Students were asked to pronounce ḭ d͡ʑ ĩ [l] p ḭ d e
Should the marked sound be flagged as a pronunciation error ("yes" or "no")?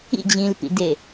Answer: no